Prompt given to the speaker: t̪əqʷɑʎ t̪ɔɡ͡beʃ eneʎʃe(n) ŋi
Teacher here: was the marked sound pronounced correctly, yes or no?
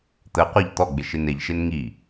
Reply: yes